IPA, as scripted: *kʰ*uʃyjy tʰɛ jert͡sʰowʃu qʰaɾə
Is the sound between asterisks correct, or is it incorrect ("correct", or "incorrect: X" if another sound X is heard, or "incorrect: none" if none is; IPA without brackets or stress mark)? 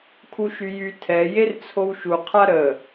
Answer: correct